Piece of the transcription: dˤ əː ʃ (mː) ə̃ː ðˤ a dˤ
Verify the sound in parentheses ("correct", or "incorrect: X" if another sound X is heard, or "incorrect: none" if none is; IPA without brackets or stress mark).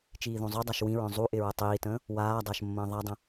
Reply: correct